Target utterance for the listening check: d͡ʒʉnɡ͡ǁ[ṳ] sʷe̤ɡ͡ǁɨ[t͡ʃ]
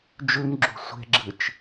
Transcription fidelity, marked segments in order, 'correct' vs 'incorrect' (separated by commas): correct, correct